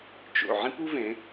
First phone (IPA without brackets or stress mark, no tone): t͡ʃ